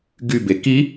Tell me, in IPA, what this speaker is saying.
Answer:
ɡybe ki

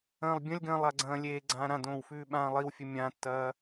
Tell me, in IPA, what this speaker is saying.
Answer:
ɐ̃ːlˠbʲɐ̃lʲɡɐ̃ːlˠ aɡ͡ǀɐ̃ːlʲeːɡ͡ǀãː ɾãdõːw fʉːɓãːlˠiwfʲɵ mʲãtːɐː

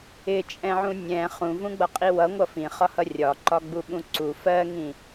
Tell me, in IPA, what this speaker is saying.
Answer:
ɪt͡ʃʼɛ̃ʕũ nʲɛ̃ χũvũɡ͡bʌqʼi wʌŋʷʌ fĩχɒhʌ rʲɒǃɒɡ͡buɓũ ǀu fɜŋĩ

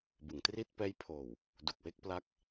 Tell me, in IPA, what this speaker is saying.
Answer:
bɯ˩˦ŋtri˥˩t̚ pɛː˦˥jpʰoː˨˩w | du˨˩k̚we˥˩k̚pla˦˥k̚

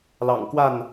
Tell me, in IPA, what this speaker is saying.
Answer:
lɑ̰˨˩ŋkwa˥˨n

